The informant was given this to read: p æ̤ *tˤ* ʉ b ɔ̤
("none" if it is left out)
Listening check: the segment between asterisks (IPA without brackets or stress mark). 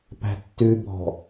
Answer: tː